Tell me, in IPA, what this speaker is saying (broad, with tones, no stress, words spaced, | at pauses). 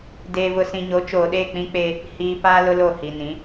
deː˨vʊ˨ sĩ˨ɲo˨˦t͡ʃoː˨ɗe˦˨ k͡pĩ˦k͡pe˦ | hiː˨ paː˦lʊ˦lo˦˨ hi˨nĩ˨˦